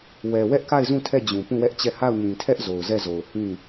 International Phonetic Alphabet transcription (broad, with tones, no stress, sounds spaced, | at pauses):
w ɛ˨ w ɛ˦ ʔ k a˦˨ ɪ̯ z ũ˦˨ tʰ ɛ˦˨ d͡ʑ ũ˨ p ũ˦˨ w ɛ˦ ʔ t͡ɕ ɛ˦˨ h a˦˨ ʊ̯ ɲ ĩ˨ tʰ ɛ˦ ʔ z o˨ ʊ̯ z ɛ˦˨ z o˨ ʊ̯ h ĩ˦˨